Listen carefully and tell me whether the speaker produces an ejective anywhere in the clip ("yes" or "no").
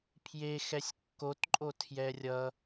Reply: yes